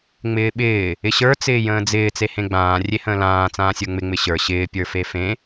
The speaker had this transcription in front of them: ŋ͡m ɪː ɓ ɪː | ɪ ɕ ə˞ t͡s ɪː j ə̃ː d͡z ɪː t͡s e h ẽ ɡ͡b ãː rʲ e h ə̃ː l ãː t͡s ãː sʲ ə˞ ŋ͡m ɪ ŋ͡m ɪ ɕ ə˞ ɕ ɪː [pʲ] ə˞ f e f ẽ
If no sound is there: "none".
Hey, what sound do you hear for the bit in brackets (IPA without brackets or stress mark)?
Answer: pʲ